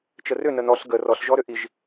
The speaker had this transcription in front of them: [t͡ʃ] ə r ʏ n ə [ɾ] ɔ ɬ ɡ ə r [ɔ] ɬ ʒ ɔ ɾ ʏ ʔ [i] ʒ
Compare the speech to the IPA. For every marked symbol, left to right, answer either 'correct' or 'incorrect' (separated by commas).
correct, incorrect, correct, correct